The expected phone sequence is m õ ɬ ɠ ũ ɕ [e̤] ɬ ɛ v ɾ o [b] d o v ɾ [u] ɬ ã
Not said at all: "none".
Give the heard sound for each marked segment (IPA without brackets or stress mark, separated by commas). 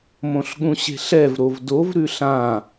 e̤, v, ʉ